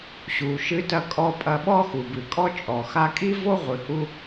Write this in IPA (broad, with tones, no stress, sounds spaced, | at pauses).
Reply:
ɕ u˩ ʃ ɨ˧ t ɐ˧ kʼ ɔ˧ pʼ ɐ˧ ɓ ɔ˥ x u˩ b ɨ˩ kʼ ɔ˥ t͡ʃʼ ɔ˩ x a˧ kʼ i˥ v o˥ ʁʷ ɨ˩ h u˧